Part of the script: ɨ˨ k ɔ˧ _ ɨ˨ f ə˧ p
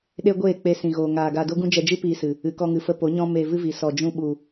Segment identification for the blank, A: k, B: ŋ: B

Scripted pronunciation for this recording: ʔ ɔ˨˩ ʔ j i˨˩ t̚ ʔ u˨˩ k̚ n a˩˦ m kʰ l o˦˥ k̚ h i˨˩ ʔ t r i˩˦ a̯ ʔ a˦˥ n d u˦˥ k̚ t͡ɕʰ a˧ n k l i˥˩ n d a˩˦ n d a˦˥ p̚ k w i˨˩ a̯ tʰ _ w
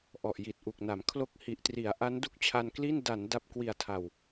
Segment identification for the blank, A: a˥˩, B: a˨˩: B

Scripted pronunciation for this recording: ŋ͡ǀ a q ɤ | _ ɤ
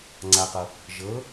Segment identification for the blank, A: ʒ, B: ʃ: A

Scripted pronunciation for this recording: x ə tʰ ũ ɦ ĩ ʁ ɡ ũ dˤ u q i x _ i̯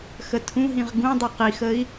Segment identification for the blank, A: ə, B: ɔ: A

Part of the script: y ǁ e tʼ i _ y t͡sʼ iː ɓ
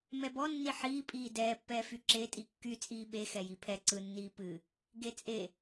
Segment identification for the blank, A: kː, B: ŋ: A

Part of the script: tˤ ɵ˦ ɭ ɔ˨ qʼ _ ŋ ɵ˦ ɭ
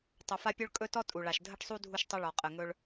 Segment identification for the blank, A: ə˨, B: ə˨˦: A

